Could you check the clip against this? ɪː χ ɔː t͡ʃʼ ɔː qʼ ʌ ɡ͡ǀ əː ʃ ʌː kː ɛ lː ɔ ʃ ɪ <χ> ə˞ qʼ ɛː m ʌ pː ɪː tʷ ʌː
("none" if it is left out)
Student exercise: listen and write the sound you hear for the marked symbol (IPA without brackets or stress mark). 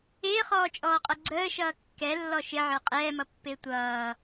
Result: ʕ